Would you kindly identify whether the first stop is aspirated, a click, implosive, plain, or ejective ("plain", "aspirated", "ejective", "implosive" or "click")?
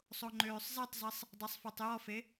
click